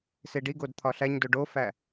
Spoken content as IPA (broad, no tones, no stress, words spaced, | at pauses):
seɖiɡod t̪ʰɒɬæɲdo ɖofæ